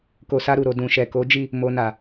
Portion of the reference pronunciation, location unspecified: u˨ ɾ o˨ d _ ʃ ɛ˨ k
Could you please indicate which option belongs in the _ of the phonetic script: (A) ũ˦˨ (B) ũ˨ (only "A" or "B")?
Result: B